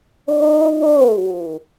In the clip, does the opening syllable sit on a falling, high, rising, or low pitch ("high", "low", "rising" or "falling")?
high